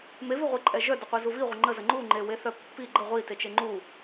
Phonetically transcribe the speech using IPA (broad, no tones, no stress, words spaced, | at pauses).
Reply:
meviʁʷiǃʼɛ ʒœdəqʷi zuviʁʷə ŋ͡ǃəzə ŋ͡ǃuŋ͡ǃe weθœpːi ɡ͡ǃə ʁʷi tet͡ʃeŋ͡ǃu